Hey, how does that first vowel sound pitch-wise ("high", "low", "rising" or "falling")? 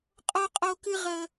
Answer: high